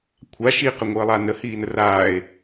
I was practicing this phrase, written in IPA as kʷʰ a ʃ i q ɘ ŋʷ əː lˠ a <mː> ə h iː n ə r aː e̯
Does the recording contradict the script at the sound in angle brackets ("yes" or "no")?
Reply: yes